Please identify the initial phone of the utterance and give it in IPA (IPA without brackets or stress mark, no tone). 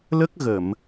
l